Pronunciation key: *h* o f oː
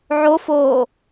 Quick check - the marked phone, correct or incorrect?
incorrect